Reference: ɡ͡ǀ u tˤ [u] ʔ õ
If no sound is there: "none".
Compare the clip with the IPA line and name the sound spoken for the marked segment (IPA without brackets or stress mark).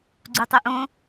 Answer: u